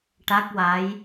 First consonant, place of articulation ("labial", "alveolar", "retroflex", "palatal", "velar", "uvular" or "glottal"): retroflex